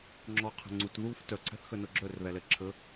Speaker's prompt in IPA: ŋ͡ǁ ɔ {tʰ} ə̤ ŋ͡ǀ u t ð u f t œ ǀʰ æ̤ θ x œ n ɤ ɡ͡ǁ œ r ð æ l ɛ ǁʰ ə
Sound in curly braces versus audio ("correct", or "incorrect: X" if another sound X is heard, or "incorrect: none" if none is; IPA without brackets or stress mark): incorrect: qʰ